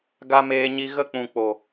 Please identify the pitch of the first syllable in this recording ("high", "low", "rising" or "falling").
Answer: high